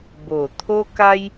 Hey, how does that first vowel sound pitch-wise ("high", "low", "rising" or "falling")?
low